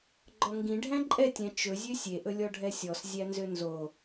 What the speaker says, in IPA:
ɡ͡ǃ ɔ ŋ ɡ ĩ ɖʱ æ̃ ǃʼ ɛ tʲ æ̃ t͡ʃ ɵ zʲ ø sʲ e ʔ ɵ lʲ ɔ ɖʱ ɛ sʲ ɔ s zʲ æ n z ø n z o

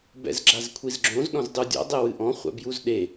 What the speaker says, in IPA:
b ɛ̰ z ɡ͡ǁ a z kʷʰ i z ɡ͡ǁ õ z ɗ ɔ̃ z dˤ u dʲ ɔ̰ dˤ e w ɨ ʔ ɔ̃ χʷ ɛ̰ b j u z ɗ e

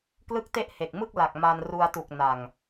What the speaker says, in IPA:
k l ɯ˥˩ k̚ t e˥˩ ʔ h e˨˩ k̚ m ɯ˥˩ k̚ l a˨˩ k̚ m a˧ n r u˧ a̯ t u˨˩ k̚ n a˨˩ ŋ

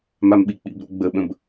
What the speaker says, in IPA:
m a m ɓ i k͡p ḭ b ɾ o̰ ɡ͡b ə ɓ ə̃ b

